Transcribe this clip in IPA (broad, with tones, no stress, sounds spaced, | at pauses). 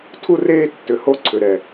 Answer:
tʰ u˦ r eː˦ tː ʏ˨ h o˦ ǀʰ ʏ˨ ɾ ɛ˨